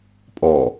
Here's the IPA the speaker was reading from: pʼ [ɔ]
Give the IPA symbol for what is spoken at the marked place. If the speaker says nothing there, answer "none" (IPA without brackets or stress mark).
ɔ